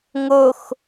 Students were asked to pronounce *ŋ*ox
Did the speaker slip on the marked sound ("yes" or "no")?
no